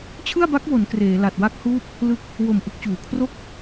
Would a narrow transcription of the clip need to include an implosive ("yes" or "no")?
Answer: no